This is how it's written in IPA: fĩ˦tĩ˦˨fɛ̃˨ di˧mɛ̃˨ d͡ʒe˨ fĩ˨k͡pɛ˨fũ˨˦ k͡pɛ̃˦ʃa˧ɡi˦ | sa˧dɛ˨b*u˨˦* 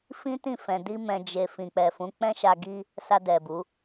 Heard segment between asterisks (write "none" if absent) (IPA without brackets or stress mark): u˨˦